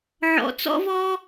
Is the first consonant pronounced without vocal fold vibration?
no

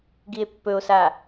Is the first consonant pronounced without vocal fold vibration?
no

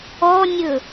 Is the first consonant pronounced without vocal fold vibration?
no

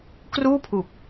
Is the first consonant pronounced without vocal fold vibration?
yes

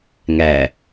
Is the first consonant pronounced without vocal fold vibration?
no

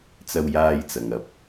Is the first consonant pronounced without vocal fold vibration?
yes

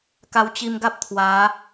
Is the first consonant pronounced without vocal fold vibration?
yes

